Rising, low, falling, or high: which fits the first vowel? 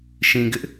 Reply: low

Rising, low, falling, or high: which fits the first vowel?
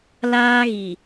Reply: high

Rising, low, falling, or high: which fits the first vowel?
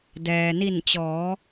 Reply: low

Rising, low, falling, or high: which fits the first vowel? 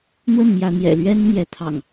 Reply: falling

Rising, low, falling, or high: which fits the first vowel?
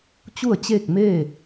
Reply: falling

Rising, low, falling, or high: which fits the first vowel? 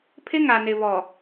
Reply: high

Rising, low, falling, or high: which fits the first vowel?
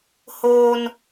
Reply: high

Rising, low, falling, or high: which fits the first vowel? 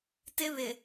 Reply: high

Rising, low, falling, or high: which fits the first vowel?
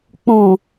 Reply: low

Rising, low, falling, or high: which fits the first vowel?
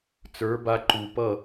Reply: rising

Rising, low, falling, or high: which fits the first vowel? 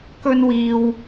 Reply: high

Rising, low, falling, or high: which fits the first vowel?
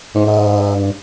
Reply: low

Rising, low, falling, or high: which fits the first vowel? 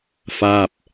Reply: falling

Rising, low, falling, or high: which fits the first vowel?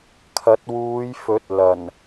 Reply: rising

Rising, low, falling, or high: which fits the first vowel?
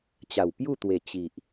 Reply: low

